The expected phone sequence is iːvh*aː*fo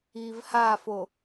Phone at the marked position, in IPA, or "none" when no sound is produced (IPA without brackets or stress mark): aː